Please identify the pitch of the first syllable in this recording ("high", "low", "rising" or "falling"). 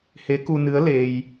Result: rising